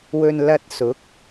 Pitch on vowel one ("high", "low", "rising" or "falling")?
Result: low